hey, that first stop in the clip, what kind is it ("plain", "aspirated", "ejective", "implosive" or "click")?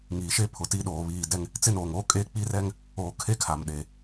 aspirated